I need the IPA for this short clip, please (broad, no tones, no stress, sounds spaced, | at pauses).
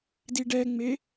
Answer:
d i ɖ ɛ ŋ͡m e